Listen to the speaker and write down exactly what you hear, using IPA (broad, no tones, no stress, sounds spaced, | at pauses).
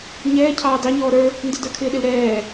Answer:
ɲ ɛː cʰ ɑː d ɑ ɲ ɔː ɾ ə˞ | n d ɪ d ə˞ kʰ ɪː ɗ ɪ l ɾ ɛː